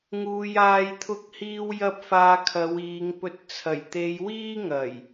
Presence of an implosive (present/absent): absent